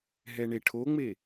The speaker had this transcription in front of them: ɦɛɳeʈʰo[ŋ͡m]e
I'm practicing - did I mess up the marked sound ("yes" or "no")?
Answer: no